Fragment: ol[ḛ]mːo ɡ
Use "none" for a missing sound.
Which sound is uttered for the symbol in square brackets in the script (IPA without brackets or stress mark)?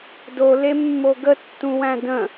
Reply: e